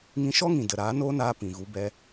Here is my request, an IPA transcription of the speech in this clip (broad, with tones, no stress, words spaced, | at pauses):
ŋĩ˧ʃɔ˦ŋĩ˨ də˨ɾaː˨˦noː˦naː˧ pĩ˨ɣu˨˦bɛ˧